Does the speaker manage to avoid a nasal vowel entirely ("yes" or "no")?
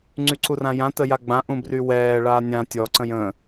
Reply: no